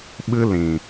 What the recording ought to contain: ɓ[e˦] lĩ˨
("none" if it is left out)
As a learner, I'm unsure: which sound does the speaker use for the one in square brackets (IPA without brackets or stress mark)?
ɨ˦